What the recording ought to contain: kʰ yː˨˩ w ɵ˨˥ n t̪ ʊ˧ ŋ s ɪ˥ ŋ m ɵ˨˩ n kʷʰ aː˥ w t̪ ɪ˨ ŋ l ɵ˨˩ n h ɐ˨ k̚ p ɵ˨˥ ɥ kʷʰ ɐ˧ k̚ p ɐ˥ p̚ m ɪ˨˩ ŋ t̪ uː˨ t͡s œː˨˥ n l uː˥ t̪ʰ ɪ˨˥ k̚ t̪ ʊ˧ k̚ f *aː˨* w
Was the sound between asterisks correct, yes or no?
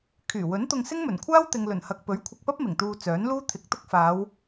no